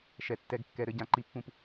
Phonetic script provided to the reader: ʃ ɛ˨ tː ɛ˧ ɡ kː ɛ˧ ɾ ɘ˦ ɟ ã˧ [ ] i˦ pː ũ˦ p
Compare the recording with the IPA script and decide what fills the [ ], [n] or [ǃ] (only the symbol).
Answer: ǃ